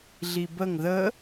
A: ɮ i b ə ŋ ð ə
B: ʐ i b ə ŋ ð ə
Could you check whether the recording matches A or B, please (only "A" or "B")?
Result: A